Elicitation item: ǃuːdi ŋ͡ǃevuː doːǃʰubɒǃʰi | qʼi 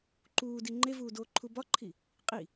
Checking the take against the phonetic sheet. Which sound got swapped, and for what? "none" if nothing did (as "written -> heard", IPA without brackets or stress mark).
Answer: none